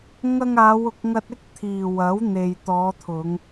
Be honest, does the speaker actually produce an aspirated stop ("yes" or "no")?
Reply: yes